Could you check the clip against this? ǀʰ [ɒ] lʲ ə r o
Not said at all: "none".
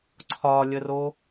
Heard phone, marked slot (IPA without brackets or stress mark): ɒ